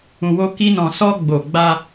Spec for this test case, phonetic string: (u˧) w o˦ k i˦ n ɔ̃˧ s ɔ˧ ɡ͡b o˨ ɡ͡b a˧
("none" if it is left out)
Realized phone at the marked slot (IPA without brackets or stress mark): ũ˧